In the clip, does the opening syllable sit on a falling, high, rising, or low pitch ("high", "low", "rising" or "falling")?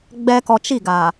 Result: low